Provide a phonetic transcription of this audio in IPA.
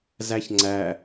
z æ ç ŋ͡ǀ æ

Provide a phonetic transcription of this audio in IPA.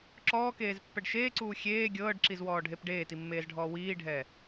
ǁ ɔː k eː z pː ɛ ɖ ʃ eː ǀ uː xʲ eː ɡʲ ɤː ɖ ǁ i z w ɔː ɖʱ e p ɖ eː t i mː eː z ɖʱ ɔː w iː ɖʱ ɛː

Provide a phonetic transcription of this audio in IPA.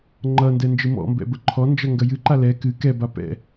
ŋ͡ǃ ʌ n d ɛ n d͡ʒ ɨ m ɔ̰ m b ɛ̰ b ə ǃʰ ɔ n d͡ʒ ʌ ŋ ɡ ɐ j ɨ ǃ a l ɛ k ɨ k ɛ b a p ɛ̰

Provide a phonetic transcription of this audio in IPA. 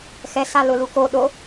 x ɛ s a l ʊ l u k o ɗ o

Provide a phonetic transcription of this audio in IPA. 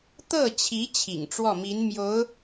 t̪ ɤ˥˩ t͡ɕʰ i˧˥ t͡ɕʰ ḭ˨˩ ŋ ʈ͡ʂ w ɔ˥˩ m i˧˥ n m j o˧˥ ʊ̯

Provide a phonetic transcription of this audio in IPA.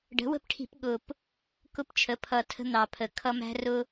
ɖ ə̤˩˥ w ə̤˦ p ʈʰ i̤˧˩˧ p ɠ ʊ˨˩ p | k ʊ˦ p t͡ʃʰ ə˩˥ pʰ ʌ˨˩ tʰ ə̤˦ n̪ ɑ˨˩ pʰ ə˨˩ kʰ ʌ˦ m æ̤˦ r ʊ˦

